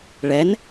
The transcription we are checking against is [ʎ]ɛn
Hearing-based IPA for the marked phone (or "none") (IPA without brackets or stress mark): ɭ